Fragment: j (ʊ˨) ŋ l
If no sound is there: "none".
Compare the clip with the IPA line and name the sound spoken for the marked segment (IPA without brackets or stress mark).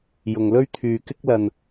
ʊ˧